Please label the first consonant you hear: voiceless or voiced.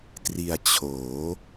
voiceless